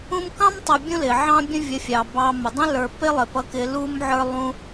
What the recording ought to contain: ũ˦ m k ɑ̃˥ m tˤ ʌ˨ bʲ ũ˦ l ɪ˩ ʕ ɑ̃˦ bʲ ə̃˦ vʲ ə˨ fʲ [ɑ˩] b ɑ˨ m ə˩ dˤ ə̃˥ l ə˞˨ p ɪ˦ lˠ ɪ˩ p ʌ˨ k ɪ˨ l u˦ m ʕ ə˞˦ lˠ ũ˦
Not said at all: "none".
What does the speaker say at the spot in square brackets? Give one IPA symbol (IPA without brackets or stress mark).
ɑ˩